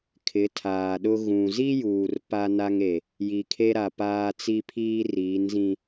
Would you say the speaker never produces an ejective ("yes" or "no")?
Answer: yes